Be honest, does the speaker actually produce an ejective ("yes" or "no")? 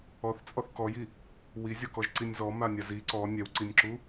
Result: yes